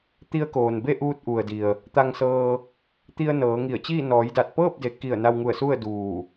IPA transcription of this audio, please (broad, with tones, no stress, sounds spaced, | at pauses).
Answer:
t̪ i˧ ə̯ k oː˩ n b e˥˨ ʔ uː˧ t̚ ʔ u˩ ə̯ d i˩ ə̯ | t̪ a˧ ŋ s ɤː˧ | t̪ i˧ ə̯ n ɤː˩˧ ŋ i˧˩ ə̯ t͡ɕ iː˥˨ n ɔː˩˧ j d a˧˩ t̚ p ɤː˥˨ p̚ d e˩˧ k i˧˩ ə̯ n a˧ w ŋ u˧˩ ə̯ s u˥˨ ə̯ d uː˧˩